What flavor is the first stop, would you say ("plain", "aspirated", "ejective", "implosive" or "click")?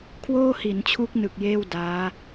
aspirated